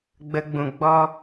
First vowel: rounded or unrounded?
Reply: unrounded